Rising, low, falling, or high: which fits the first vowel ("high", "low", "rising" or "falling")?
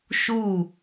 falling